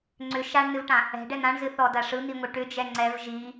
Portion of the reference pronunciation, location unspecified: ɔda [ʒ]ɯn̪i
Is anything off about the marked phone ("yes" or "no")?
yes